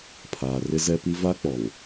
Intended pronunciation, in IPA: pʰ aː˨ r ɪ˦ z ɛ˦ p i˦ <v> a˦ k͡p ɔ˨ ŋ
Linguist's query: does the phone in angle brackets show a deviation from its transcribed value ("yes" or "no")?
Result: no